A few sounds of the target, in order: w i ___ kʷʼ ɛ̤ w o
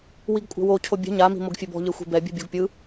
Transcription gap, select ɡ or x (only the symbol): ɡ